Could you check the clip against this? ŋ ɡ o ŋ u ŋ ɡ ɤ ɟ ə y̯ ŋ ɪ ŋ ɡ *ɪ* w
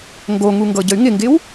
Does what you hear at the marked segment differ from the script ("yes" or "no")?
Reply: no